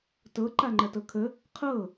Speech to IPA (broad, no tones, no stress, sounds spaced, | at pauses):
t ɤ ǃ a ŋ͡ǃ ɐ t ɤ kʰ ə | qʰ ɤ